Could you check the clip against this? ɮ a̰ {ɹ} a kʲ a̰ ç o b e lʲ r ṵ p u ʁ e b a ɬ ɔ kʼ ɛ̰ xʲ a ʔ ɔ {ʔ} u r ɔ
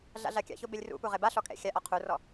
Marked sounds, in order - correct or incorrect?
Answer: incorrect, incorrect

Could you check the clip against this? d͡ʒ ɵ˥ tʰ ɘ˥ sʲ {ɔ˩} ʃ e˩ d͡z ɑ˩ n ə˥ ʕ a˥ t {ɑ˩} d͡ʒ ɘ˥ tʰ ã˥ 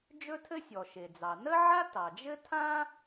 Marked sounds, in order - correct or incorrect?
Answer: correct, correct

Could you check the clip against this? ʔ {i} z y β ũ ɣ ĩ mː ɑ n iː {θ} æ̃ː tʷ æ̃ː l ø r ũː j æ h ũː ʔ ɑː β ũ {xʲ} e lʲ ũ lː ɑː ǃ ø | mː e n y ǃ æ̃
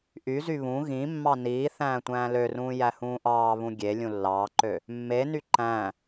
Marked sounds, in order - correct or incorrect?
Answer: incorrect, correct, incorrect

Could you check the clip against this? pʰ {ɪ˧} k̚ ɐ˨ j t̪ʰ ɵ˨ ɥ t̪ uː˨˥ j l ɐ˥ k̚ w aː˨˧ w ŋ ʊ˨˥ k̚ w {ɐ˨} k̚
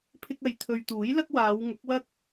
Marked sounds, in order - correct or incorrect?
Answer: correct, incorrect

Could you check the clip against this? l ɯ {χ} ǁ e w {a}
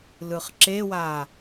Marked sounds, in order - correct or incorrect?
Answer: correct, correct

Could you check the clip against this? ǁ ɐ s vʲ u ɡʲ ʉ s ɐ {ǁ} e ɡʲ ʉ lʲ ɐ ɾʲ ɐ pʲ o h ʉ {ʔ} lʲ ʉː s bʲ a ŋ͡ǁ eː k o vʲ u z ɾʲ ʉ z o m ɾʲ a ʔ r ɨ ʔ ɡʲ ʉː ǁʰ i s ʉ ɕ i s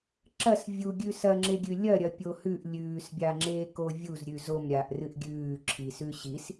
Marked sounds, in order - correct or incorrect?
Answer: incorrect, correct

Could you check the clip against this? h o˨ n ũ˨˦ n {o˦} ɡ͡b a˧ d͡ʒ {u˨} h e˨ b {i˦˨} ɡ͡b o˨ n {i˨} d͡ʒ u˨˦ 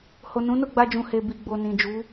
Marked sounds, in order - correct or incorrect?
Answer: incorrect, incorrect, incorrect, incorrect

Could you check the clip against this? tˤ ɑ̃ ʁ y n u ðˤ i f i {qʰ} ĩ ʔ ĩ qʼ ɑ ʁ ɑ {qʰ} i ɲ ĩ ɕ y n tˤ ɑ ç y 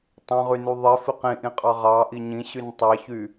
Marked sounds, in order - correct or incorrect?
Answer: incorrect, incorrect

